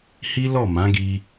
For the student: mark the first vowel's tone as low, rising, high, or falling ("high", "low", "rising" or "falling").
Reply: high